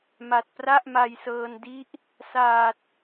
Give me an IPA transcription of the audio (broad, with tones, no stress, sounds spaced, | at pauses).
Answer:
m a˨˩ t̚ p r a˥˩ ʔ m a˧ j s ɤː˧ n d i˦˥ ʔ | s aː˨˩ t̚